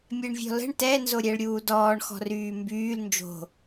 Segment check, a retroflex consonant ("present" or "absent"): present